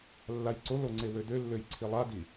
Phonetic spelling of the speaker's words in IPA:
lː a j ǀ o l o ŋ͡ǀ e w ø d ø lː ø j ǀʰ i lˠ a d i

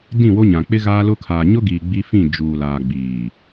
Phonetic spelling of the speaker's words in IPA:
d ĩ˦˨ w o˦ ɲ ã˨ k͡p ɪ˦ ɣ aː˦ l ʊ˦ kʰ aː˨ ɲ ʊ˦ ɡ iː˨ ɡ͡b i˦ f ĩ˦˨ d͡ʒ uː˨ l aː˨ ɡ͡b iː˨

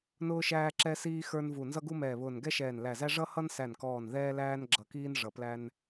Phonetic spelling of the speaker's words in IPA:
n ʊː˧ ʃ æː˧ ǁ ɛ˧ s iː˧ x ə˞˧ n v u˨˩ n z ʌ˧ ɡ u˧ m ɛː˨˩ β ʊː˨˩ n ɡ ɛ˧ ʃ ɛː˨˩ n l æ˨˩ z æ˧ ʐ ʌ˧ h ʌ˧ n s æ˨˩ n k ɔː˨˩ n ð ɛː˧ l æː˧ n ɡ͡ǁ ʌ˨˩ k iː˧ n ʐ ʌ˨˩ p l æ˧ n

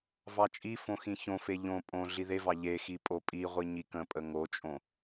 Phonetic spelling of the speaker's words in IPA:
v ɑ t͡ʃʼ i f õ x ĩ ç õ f e ʎ õ pʼ õ ɮ i ð e v ɑ ʎ e x i pʼ o pʼ i ʁʷ i ɲ i k ə̃ pʼ ə ŋ o t͡ʃʼ õ

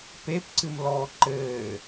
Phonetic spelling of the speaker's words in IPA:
p e p ǀ ɨ m l ɔː ǃ ɘː

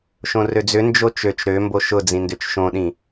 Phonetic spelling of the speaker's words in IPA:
ʃ õ r ø d͡z ʏ n d͡ʒ o t͡ʃ ø t͡ʃ ɾ ø m b o ʃ ʊ d͡z ĩ n d ʏ t͡ʃ ʃ õ ɗ ĩ

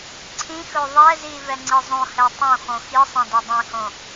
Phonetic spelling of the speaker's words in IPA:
ǀʰ ĩ x ɵ ðˤ ɛ z i v ɛ ŋ͡ǀ i zˤ õ h ɛ tˤ õ x õ x i sˤ ẽ d ɵ dˤ ĩ h õ

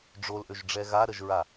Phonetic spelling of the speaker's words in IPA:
ɖ͡ʐ o l ʔ ø ʒ ɖ͡ʐ ɛ ɣ a ɾ ə ʒ ɹ a

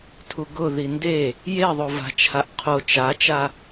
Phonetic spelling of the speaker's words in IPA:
tʰ u ɡ ʊ ð i n d e | j e ðˤ o v a̤ t͡ʃʰ a ʔ qʰ o t͡ʃ a t͡ʃ a

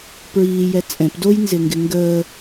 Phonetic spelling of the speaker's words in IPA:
p ɹ iː j ɛ t͡sʼ ɛ̃ p d o j n z ɪ ŋ ɡ ɪ ŋ ɡ əː

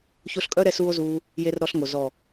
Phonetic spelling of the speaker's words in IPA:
ç o˧ ɬ kʼ œ˦ ɾ ɛ˧ s uː˧ o̯ z uː˧ | j e˧ r ɾ ɔ˧ ɬ ŋ o˨ z ɔ˨

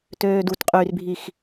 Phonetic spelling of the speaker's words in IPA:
t øː d u t qʼ yː r bʱ i x

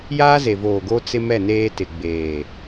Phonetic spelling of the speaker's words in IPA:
j aː˦ z e˨ v oː˨ ɡ o˦ t͡s ɪ˦ m ɛ˦˨ n eː˦ t ɪ˨ ɡ͡b eː˨

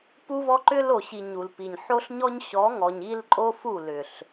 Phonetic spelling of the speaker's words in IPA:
p u˦ v ɔ˦ ǃ ʏ˦ l o˨ ɕ i˨ ɲ u˨ l p i˨ ɲ ħ o˦ ɬ ɲ ɔ˦ ɲ ɕ ɔ˨˦ ŋ ɔ˨ ɲ i˦ l ǃʼ o˦ f u˦˨ l ʏ˨ ɬ

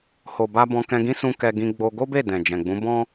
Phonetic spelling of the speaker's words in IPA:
h o˨ b a˧ b ɔ̃˧ k ɛ̃˧ ɡ ĩ˦ s ũ˧ k ɛ˧ ɡ ĩ˧ ɡ͡b o˧ ɡ o˦ b e˦˨ d ɛ̃˨ d͡ʒ ɛ̃˨ ɡ͡b ũ˨˦ b ɔ̃˦

